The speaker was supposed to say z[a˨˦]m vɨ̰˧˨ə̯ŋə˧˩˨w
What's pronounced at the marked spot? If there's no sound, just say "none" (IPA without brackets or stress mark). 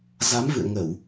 a˨˦